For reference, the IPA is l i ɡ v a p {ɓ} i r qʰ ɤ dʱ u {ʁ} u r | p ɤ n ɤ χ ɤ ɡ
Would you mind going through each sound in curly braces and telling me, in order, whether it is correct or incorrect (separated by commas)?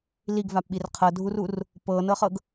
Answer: correct, incorrect